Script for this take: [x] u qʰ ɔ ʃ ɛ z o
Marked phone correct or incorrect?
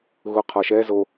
incorrect